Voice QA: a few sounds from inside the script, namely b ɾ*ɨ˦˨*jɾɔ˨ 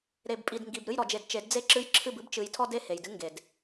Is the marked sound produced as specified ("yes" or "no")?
yes